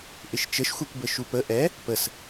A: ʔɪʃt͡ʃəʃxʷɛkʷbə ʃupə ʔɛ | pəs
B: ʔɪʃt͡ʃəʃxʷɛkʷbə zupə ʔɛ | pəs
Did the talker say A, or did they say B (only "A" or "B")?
A